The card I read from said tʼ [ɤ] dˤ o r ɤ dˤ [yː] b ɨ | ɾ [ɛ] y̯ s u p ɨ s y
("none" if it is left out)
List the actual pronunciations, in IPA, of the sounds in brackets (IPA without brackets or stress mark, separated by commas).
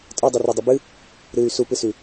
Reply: ɤ, y, ɨ